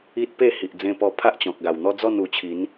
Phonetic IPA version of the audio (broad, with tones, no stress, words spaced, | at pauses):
i˦t̚pe˥˧hi˨ʔ d͡zẽ˧pɔ˧pʰa˦ʔ t͡ɕɔ̃˨k̚ɡa˨˩wn̪ɔ˦ d͡zɔ˥˧nu˨˩t͡ɕʰi˨˦n